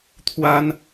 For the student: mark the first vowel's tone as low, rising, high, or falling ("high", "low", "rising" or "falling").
high